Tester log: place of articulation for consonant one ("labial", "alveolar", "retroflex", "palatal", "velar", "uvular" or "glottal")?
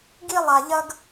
velar